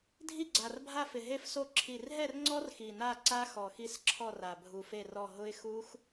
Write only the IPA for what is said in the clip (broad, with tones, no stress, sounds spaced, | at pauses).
dʱ i˦˨ ɡ͡ǀ a˨˩ r bʱ a˦˨ f ɪ˨˩ ɦ e˦˨ f s o˦˨ ǁʰ i˨˩ r ɦ ɛ˦˨ r ŋ͡ǀ ɔ˦˥ r x i˨˩ n a˦˨ ǀ a˦˥ x ɔ˨˩ x i˦˨ s ǁʰ ɔ˦˨ r a˨˩ bʱ u˨˩ f e˦˨ r ɔ˦˨ ɦ ʊ˦˥ ɪ̯ x u˦˥ x